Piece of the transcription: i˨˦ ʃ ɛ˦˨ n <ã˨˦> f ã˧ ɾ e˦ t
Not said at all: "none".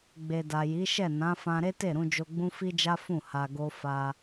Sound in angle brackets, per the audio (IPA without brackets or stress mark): ã˨˦